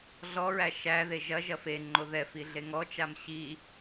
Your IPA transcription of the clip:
ɮ ɔ ɹ æ ʃ æ ð e ʒ ɐ ʒ ɐ f e ŋ͡ǃ o ð ɛ f i ɮ e ŋ ɔ t͡ʃ a m ɕ i

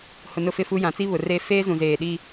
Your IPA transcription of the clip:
h ʊ˨ n ʊ˦ f ɪ˦ f u˦ j ã˨˦ t͡s i˦ β ʊ˨ r eː˦ f eː˦ z ũ˨ z eː˨ ɗ iː˦

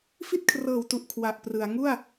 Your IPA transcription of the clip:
f i˥˩ t̚ kʰ r ɤː˨˩ w t u˨˩ ʔ kʰ w a˨˩ ʔ p r ɯ˩˦ a̯ ŋ u˥˩ a̯

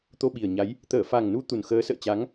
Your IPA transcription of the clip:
t̪ o˧ ɓ i˨˩ ə̯ ɲ a˨˦ j | t̪ əː˧˩ f a˨˩ ŋ n u˨˦ t̪ u˨˩ n x əː˨˦ s ə̰ː˧˨ t͡ɕ a˨˦ ŋ

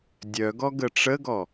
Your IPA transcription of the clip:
dʲ œ ɡ ɔ ɡ ə ʈ͡ʂ ə ɡ ɔ

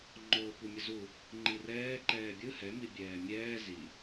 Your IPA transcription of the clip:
ŋ͡ǃ oː kʷ ɛ mʲ ʌ z u | ŋ͡ǃ i r ɛː ǃ ɛː bʲ ɯ h ɛ m i bʲ ɛː mʲ ɛː z i

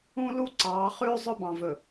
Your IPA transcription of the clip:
ũ˦ l u˦ ǀ ɑː˨˦ χ ʉː˦ zˤ ɵ˦ b ɑ̃˨ v ɵ˨

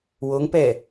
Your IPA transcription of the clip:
w o ŋ p ɛ

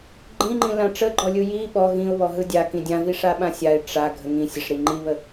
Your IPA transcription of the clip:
ɡ͡ǃ ĩ ŋ͡ǃ ĩ l ã ʈ͡ʂ ə ɡ͡ǃ ɔ lʲ ɯ j i ɓ ɔ ɣ ĩ ʊ̯ β ɔ ɦ ɯ dʲ a k ĩ dʲ ã v i ʂ a ɓ ã sʲ a ɪ̯ ʈ͡ʂ a ɡʱ ə ŋ ĩ sʲ ə ʂ ɾ i ŋ͡ǃ i β ə

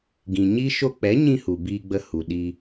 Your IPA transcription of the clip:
ɡ ĩ˨ ɲ i˦ ʃ o˧ k͡p ɛ˨˦ ɲ ĩ˧ h u˨ b iː˧ ɡ͡b ə˧ h u˨ ɗ i˧

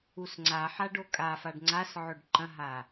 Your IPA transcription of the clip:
u s ŋ͡ǀ a ħ a ɖ o kʼ a f a ɖ ŋ͡ǀ a s ʕ ɵ ɖ ǃ ɐ̃ ɦ a

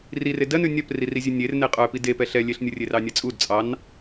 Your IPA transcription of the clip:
r i r e d ɜ n ʉ nʲ œ p r i r i zʲ ʉ nʲ e r n e qʼ œ p i d e p ɛ ɬ ɛ lʲ e ɬ nʲ u rʲ e r ɑ nʲ ɛ t͡sʼ u d t͡sʼ ɑ n

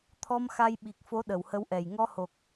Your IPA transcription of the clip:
t̪ʰ ɔ˧ m x a˧ j ɓ i˨˩ k̚ f o˨˦ ɗ ə˨˩ w h ə˨˦ w ʔ ɛ˨˩ j ŋ ɔ˧ h o˨˩ k̚

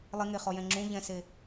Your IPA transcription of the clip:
lˠ i ŋ e χ ɔ j ɛ̃ ŋ͡ǁ ũ ʎ ɛ̃ s e

